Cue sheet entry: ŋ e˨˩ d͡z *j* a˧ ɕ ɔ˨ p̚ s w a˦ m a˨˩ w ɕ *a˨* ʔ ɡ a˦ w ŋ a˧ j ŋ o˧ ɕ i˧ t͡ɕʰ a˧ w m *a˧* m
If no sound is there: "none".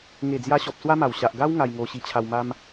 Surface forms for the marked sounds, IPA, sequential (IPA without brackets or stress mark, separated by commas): j, a˨, a˦